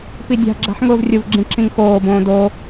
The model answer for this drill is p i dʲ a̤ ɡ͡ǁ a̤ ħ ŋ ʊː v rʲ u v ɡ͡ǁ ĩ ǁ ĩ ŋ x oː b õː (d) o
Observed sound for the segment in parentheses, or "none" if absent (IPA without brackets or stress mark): d